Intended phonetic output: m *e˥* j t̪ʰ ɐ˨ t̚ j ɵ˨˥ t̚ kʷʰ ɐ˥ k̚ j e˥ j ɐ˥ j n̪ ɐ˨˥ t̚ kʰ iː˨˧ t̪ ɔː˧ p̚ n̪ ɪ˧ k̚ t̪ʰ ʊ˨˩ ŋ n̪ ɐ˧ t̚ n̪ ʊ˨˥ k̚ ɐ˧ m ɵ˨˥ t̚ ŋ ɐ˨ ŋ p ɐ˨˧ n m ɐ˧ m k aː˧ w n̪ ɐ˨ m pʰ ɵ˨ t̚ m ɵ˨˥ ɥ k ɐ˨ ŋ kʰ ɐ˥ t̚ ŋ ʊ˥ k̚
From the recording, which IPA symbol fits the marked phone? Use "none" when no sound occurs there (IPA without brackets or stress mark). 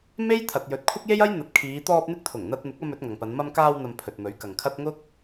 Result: e˥